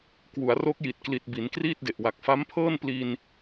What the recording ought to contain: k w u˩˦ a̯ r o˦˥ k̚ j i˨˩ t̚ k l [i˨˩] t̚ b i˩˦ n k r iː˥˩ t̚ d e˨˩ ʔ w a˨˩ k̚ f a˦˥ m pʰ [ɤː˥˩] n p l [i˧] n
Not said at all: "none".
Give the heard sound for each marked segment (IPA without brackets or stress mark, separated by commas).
i˨˩, ɤː˥˩, i˧